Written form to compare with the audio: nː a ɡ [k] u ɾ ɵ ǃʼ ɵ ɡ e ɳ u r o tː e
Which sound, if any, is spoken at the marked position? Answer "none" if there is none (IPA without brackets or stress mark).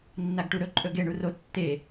ʈ